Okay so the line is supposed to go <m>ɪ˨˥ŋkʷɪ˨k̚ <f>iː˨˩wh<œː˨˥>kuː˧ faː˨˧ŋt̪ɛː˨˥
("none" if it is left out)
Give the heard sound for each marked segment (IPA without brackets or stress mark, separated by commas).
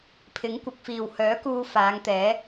pʰ, f, œː˨˥